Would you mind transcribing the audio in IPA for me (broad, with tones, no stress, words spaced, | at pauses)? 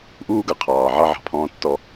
ʔuː˦ɡʌ˩qʰɑː˩ ʕɑ˦ ʕɑ̤˨pʰɔ̃ː˦tːɔ˦